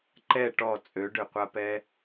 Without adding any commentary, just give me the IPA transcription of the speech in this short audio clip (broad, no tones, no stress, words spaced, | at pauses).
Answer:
ǃɛ ʈɔ t͡sʼøɖøqʷapɛ